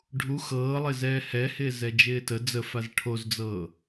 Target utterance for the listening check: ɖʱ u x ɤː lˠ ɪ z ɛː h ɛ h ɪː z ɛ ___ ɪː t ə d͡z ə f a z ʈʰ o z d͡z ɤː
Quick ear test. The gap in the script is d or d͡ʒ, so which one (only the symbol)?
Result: d͡ʒ